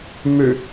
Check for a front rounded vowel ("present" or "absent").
present